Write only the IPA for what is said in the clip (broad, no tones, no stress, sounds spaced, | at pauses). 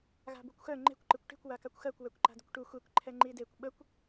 ɣ a̤ b u kʷ x œ ŋ͡ǃ e̤ kʷ ǃ ɨ kʷ ʈ e̤ kʷ w a k a kʷ x ɜ kʷ w ɛ kʷ ǃ a̤ d ə kʷ ʈ u xʷ e kʷ ǃʰ ɛ ŋ͡ǃ i d e kʷ ɓ ə kʷ